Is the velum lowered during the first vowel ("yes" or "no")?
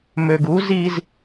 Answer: no